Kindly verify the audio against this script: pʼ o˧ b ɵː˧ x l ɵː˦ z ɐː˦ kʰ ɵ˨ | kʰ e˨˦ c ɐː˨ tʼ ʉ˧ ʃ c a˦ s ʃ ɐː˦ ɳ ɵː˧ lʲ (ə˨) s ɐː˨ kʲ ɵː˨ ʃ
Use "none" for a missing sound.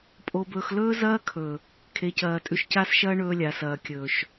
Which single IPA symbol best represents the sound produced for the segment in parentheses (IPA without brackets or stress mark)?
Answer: a˨